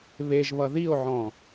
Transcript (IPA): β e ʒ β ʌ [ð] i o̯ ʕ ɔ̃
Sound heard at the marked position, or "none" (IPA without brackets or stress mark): ð